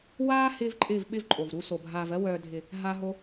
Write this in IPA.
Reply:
waː˦ hɪː˦vǃʼɪː˦˨v ɓɪ˦vǃʼo˨vɾu˧so˨ bʱaː˨vɜ˧wœː˨dʱɪ˨ | ɦa˧ɦo˧

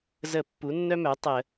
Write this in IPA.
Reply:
zə˧˩˧ pːu˩˥nːœ˦mœ˩˥ tˤə˧˩˧

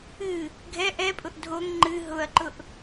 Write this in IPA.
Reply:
ɨ | ɡʱɛ ʔɛpʼʊʔ dʱoŋ ŋ͡ǃɨ ɦʊɐ̯ǃʊʔ

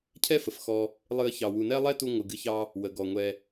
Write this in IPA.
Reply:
cʰɛ˥fə˩fxɔ˨ | lˠɨ˦ə̯çɑ˨ wu˨nɛ˥lˠɛ˥ tu˥ ŋʷɨ˩ɡɨ˦çɑ˥ | wə˩ɡɔ˩ŋʷɛ˨

